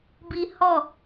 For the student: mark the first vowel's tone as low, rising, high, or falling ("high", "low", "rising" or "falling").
high